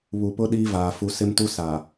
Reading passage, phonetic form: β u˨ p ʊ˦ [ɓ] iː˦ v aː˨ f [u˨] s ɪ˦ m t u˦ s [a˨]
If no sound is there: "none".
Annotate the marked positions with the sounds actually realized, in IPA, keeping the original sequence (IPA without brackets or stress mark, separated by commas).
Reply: ɗ, u˨, a˨